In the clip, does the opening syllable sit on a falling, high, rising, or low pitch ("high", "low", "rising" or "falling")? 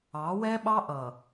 rising